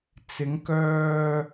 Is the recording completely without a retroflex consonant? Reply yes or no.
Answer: yes